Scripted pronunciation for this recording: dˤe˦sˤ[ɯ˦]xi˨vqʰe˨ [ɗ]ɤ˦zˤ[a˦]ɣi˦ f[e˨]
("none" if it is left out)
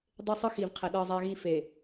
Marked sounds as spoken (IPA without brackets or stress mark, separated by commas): ɯ˦, ɗ, a˦, e˨